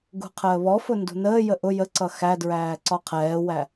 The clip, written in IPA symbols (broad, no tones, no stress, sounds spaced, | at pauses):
ɡ ṳ qʰ əː β ɔ f ʊ n d ṳ n əː j ə ʔ ʊ j ə ǀ ʌ x æ d ɹ æː ǀ ɒ qʰ ɛː w æ